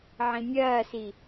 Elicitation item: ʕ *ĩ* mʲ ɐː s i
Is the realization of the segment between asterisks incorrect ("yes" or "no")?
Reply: no